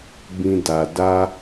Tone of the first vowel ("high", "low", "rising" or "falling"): high